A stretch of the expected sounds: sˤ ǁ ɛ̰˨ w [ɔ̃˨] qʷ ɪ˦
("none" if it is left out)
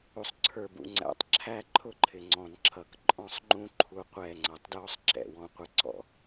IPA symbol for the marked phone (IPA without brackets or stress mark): ɔ̃˦